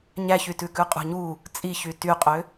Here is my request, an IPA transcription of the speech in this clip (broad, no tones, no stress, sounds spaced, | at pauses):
ɲ æ ç y t ʉ k ʉ qʼ ṳ ɲ u | t͡sʼ i ç y t y qʼ ø